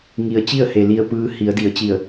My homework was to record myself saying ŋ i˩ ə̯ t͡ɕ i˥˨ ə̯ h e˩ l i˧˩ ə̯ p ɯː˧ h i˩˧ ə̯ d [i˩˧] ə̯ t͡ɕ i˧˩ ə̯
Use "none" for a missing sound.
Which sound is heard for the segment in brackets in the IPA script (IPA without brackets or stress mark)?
i˩˧